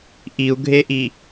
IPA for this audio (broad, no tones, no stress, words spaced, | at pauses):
ʔiu̯ɡʱeʔi